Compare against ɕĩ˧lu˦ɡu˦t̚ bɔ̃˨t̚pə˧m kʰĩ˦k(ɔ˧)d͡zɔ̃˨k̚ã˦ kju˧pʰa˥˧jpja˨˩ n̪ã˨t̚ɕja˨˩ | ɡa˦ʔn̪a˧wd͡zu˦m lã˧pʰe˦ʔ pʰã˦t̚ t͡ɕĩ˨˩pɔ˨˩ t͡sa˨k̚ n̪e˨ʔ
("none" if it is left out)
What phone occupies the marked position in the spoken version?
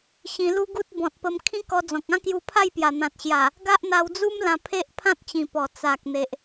ɔ˧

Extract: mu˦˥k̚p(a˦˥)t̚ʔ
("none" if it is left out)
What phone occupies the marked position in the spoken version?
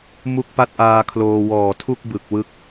a˦˥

